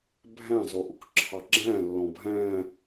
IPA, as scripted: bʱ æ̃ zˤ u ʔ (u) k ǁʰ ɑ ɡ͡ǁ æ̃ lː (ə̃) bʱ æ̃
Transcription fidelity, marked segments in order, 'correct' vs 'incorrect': incorrect: ʊ, incorrect: ɔ̃

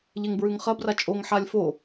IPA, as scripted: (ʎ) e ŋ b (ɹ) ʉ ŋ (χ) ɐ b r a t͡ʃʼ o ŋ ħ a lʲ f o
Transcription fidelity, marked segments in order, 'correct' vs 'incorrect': correct, correct, correct

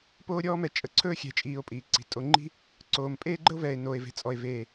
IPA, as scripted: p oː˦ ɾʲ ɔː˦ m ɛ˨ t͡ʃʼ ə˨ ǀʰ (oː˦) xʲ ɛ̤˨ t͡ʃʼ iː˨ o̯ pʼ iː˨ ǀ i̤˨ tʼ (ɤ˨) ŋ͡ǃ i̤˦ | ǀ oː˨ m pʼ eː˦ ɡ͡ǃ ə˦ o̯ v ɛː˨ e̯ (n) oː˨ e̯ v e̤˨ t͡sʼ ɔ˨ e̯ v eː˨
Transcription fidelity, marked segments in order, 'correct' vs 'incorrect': incorrect: ɵː˦, incorrect: o˨, correct

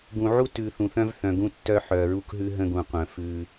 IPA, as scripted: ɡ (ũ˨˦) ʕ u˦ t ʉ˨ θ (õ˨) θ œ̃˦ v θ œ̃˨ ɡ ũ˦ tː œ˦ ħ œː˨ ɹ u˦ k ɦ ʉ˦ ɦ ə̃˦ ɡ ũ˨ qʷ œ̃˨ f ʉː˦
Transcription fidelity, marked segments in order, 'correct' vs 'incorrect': incorrect: ũ˨, incorrect: ũ˨

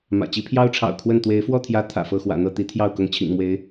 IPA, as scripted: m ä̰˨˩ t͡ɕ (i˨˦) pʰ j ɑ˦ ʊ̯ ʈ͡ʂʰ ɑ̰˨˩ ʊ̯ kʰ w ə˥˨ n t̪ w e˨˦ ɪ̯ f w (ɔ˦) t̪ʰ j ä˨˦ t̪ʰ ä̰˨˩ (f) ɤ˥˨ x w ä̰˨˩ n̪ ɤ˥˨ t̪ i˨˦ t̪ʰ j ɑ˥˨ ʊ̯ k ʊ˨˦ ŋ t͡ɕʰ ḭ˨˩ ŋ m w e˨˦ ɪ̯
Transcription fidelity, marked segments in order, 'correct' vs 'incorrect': correct, incorrect: ɔ˥˨, correct

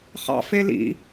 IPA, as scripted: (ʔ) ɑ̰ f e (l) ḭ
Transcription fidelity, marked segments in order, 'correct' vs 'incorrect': incorrect: χ, correct

